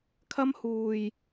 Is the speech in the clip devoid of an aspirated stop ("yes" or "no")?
no